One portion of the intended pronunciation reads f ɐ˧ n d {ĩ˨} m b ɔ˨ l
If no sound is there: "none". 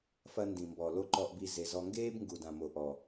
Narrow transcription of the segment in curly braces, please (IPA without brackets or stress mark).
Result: ĩ˨